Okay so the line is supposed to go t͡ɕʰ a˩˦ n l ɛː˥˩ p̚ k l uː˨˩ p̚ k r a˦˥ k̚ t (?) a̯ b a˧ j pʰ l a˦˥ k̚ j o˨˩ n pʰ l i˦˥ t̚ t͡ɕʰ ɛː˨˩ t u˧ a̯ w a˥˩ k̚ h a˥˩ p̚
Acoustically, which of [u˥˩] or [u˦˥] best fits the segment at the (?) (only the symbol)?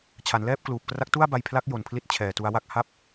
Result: u˥˩